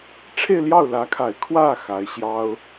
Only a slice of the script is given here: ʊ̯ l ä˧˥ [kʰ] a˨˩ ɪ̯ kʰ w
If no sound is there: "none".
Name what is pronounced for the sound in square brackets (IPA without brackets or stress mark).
kʰ